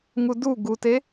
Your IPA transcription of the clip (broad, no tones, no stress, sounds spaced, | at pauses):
ŋ u d u ɡ u t e